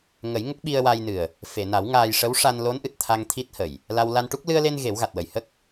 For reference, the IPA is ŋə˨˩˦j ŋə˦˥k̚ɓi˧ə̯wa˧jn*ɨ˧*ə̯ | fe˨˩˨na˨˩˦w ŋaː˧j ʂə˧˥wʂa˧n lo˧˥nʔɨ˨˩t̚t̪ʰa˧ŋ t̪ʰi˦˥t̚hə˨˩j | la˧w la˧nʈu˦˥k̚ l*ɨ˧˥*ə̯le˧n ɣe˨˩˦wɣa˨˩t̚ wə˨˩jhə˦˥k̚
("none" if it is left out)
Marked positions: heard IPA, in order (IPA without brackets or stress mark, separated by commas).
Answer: ɨ˨˩, ɨ˧